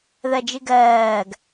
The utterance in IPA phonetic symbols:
ð ɜ d͡ʒ ɨ ɡ ɜː ɡ

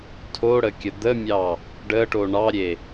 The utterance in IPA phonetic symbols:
tʰ o ɽ ə kʲ ə d̪ ə mʲ ɑ | ɖ ə ʈ o ɳ ɑ ɾʲ e

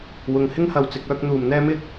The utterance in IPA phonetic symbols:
w ʊ˨ ŋ h ɪ˥ ŋ h ɐ˨˧ w t͡s ɪ˨˥ k̚ œː˥ k̚ n̪ uː˨ m n̪ ɛː˥ m ɪ˥ k̚

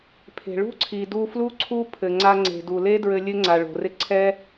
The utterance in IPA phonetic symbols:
pʰ e̤˨ ɭ ṳ˦ ǀʰ i˨ d u˧ f l u˦ ǀʰ u˦ pʰ ɘ˨ ŋ͡ǀ a˧ ŋ͡ǀ e̤˨ d u˨ l e˦ d ɹ ɘ˧ lʲ ɘ˦ ŋ͡ǀ a˨ ɭ o̤˨ r ɪ˦ ǀʰ ɛ˦

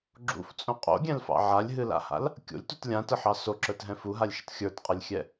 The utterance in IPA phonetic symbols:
ɡ͡ǁ ṵ f t͡sʼ õ qʼ o̰ ɡʲ ɛ̃ l f ɑ̰ ʕ a lʲ ɦ ɨ l a̰ h a̰ l | kʲ o̰ lʲ t u t lʲ ã t ə ħ ɑ s o ǁ ə˞ t ɦ ɛ̃ f u ɦ a lʲ ʃ ə t xʲ ə˞ t qʼ ɘ lʲ xʲ ɛ

